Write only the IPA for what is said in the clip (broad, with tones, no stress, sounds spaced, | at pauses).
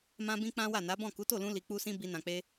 m ã˦ b ĩ˦ k͡p ã˦ w a˦˨ n a˨˦ b ɔ̃˦˨ k u˨˦ t o˦˨ l ũ˧ l i˨ k͡p u˧ s ĩ˧ b i˧ n ã˨ k͡p e˧